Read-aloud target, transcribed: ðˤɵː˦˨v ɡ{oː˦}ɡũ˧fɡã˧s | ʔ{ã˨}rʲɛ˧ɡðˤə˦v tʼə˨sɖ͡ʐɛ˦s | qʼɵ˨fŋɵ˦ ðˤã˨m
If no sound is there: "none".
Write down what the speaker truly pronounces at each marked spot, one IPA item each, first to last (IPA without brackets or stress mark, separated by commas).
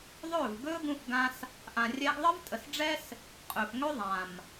ɵː˦, ã˨